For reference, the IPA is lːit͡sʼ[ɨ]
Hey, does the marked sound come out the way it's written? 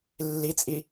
no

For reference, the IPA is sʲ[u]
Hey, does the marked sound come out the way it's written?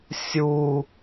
yes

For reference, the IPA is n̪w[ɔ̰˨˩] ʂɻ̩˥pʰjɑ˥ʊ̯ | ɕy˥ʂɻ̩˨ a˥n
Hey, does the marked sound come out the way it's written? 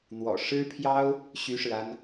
yes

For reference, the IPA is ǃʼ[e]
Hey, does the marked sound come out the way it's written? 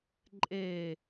yes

